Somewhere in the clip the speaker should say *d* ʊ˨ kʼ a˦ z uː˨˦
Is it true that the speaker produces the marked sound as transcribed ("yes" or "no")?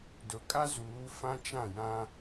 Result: yes